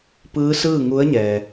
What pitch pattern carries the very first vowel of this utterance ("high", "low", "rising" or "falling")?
rising